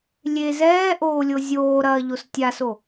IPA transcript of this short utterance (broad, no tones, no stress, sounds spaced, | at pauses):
lʲ e z ɛː ʔ oː lʲ o zʲ oː ɾ ɐː ʎ o s tʲ a s o